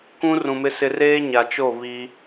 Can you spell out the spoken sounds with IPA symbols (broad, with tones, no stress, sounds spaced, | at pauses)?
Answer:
kʷ ũ˦ r ũ˨ m ɪ˦ s ɪ˦ r eː˦ ɲ a˨ t͡ʃ o˦˨ β i˦